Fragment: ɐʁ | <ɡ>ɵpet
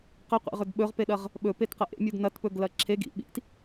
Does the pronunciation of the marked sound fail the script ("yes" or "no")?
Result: yes